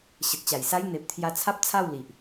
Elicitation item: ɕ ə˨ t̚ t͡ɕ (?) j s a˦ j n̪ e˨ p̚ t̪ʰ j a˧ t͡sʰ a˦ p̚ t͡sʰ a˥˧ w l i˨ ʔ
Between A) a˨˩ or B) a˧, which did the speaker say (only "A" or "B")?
A